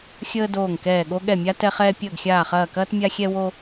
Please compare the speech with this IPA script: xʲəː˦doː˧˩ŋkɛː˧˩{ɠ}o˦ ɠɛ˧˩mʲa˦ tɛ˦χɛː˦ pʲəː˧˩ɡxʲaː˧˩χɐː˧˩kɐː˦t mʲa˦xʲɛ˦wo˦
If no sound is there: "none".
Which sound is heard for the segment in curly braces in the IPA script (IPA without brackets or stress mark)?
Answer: ɠ